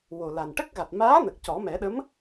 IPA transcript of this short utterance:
w o˨˩ l a˨˩ n ʈ ə˦˥ k̚ ɣ a˨˩ t̚ m aː˧˥ n ə˨˩ k̚ c ɔ˨˩˦ m ɛ˨˩˦ ɗ ə˧˥ m

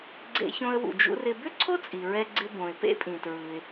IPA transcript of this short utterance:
ɡ͡ǀ ḛ˧ ç õ˧ ə̯ w ṵ˩ d͡ʒ ṵ˧ r ɪ˧ b ʏ˥ ǀʰ o˥ t͡sʼ i˩ ɹ ɛ˧ ɡ͡ǀ ɪ˧ b õ˩ ɪ̯ p ḛ˥ pʼ ĩ˩ t ɹ ɯ˩ ɪ̯

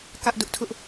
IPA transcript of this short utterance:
k ä˦ ʔ d ʊ˦ ʔ tʰ ʊ˦ ʔ

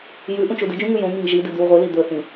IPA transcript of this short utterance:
j ʉ ʔ ũ t͡ʃ u d ɨ d͡ʒ ũ ŋ ʉ j õ ŋ i ŋ ʒ i d ɨ d̪ ʉ w ʁʷ ɨ l i d̪ ɵ θ ĩ

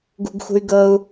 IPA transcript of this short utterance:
ɡ ṳ ɡ x ṳ y̯ ɡ ɤ u̯

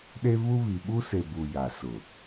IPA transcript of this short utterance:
ɗ e˦ β u˦ β i˨ ɓ u˦ s e˨ b u˨ j a˨ s ʊ˨

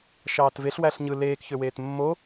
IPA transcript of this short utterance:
ʃ ɑː t v e ɬ w æ ɬ ɲ ɯ l eː k ç ø w eː t mː o

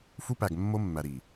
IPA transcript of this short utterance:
f u˦ p æ˨ ɡ mː o˦ mː æ˨ ɾ i˨

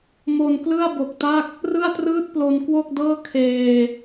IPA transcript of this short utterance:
m o˧ n k l ɯ˥˩ a̯ b o˨˩ k̚ t a˥˩ k̚ | r ɯ˥˩ a̯ t r ɯː˥˩ t̚ p l o˧ n k w o˥˩ k̚ d ɤː˥˩ kʰ eː˧

